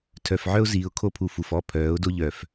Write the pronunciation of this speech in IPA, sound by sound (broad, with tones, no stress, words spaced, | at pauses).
tʰœ˨fʕœ˦ʊ̯ziː˨ʊ̯ kʰo˦pʰu˨ fu˨f ɔ˦pʰœː˨˦ʊ̯do˦ ʎœ˨f